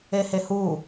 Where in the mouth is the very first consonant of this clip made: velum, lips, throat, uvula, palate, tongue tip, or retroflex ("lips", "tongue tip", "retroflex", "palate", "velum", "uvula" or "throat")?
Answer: throat